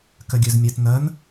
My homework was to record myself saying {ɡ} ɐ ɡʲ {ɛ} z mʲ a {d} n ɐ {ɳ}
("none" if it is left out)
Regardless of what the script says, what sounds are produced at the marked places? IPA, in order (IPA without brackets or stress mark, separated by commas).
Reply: k, œ, t, n